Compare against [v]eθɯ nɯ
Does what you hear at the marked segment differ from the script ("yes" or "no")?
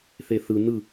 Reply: yes